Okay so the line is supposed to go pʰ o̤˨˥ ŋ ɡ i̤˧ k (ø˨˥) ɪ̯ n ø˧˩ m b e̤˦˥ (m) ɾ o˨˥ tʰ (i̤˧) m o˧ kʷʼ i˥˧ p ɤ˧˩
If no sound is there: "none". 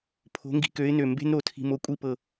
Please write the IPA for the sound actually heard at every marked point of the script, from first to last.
ø˨˥, n, i̤˧

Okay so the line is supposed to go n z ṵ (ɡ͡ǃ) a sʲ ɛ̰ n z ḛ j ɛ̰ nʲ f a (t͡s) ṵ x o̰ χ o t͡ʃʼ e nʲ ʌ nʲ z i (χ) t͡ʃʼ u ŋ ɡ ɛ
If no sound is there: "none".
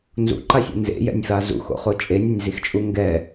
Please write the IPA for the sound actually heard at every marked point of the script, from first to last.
ǃ, z, x

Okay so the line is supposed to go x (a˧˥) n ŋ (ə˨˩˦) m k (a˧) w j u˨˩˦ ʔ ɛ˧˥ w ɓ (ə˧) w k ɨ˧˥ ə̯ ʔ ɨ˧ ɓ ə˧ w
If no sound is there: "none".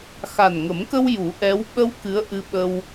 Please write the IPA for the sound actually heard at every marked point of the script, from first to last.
a˨˩, ə˨˩˦, ə˧, ə˧

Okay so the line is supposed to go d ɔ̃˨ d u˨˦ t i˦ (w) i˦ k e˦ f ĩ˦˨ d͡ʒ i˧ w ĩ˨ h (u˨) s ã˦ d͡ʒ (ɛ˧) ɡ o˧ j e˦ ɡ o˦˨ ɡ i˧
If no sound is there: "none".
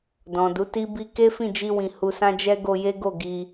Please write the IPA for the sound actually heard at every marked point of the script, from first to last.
b, u˧, ɛ˦

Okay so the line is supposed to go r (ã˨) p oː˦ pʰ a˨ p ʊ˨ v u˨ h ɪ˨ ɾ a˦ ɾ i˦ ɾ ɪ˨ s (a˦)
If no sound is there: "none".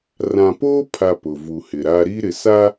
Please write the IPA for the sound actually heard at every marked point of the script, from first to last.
ã˨, a˦

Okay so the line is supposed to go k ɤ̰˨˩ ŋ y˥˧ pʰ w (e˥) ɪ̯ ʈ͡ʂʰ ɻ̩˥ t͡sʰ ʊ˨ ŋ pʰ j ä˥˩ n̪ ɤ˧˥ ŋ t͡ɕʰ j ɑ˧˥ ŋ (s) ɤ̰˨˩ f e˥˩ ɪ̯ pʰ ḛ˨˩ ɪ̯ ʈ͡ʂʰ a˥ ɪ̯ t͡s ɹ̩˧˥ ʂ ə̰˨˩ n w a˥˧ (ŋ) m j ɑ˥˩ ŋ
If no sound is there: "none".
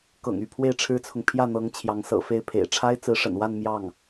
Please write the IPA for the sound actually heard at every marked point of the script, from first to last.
e˥˩, s, n

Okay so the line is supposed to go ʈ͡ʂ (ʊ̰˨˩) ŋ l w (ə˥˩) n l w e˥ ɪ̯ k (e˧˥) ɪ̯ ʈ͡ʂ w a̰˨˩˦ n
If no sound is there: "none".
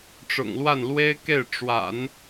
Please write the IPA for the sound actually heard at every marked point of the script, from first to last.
ʊ̰˨˩, a˥˩, e˥˩

